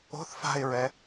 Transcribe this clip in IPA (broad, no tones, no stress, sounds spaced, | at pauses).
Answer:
o̤ θ f a̤ ɪ̯ ɹ ɛ